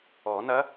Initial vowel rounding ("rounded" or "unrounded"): rounded